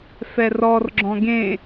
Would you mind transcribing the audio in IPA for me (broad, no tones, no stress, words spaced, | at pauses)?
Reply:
fɛrɔr ɡ͡ǁɔ̃ɡẽ